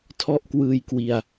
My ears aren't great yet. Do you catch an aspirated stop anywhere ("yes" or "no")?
yes